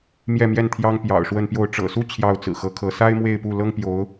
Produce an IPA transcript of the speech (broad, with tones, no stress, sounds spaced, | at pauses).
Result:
m j ɛ˥˧ m j ɛ˥˩ n t̪ʰ j ɑ˥ ŋ p j ɑ̰˨˩ ʊ̯ ʂ w ə˥˧ n p j o˥˩ ʊ̯ ʈ͡ʂ ɤ̰˨˩ s u˥˧ t͡ɕʰ j ɑ˥˩ ʊ̯ t͡s ɹ̩˨˩ x ɤ˧˥ kʰ ɤ˧˥ s a˥ ɪ̯ m w e˥˧ ɪ̯ p u˥˩ l ɤ˥ ŋ p j o˧˥ ʊ̯